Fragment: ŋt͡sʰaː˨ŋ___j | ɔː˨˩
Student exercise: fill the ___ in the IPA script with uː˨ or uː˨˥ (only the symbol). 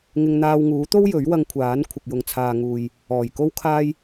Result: uː˨